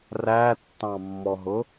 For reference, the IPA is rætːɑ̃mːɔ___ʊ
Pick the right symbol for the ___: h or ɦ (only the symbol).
ɦ